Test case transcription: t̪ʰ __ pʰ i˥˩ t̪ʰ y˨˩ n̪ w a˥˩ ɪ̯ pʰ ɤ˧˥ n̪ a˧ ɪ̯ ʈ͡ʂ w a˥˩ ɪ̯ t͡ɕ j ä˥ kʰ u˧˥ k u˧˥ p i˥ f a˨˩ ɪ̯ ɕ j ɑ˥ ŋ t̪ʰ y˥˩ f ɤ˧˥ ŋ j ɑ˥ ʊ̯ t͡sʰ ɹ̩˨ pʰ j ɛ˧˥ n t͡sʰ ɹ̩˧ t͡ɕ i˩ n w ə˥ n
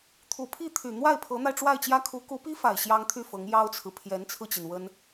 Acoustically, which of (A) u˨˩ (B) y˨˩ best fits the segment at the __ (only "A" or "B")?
A